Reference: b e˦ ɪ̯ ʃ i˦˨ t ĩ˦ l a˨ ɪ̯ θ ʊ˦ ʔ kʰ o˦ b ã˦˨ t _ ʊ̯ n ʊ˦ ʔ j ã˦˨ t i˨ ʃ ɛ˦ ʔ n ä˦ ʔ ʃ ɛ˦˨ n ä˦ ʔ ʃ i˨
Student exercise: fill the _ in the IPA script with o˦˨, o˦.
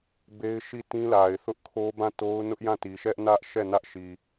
o˦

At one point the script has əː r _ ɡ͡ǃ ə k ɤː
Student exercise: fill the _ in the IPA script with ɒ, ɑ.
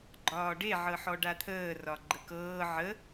ɒ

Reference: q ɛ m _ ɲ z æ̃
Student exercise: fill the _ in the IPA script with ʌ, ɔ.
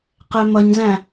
ʌ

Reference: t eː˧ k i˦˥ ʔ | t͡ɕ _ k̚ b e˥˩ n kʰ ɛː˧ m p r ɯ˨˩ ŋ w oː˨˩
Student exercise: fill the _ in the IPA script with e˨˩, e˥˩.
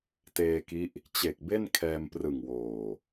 e˨˩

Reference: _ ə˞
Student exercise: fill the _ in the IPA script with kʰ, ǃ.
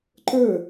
ǃ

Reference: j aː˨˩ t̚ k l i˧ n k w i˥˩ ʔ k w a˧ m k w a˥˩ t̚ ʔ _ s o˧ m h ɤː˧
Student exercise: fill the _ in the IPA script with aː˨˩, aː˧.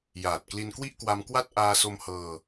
aː˧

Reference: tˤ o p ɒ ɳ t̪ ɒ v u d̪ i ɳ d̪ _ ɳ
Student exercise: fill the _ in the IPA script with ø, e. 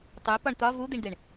e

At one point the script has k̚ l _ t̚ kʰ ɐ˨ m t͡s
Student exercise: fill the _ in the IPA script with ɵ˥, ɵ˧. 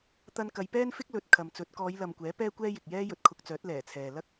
ɵ˧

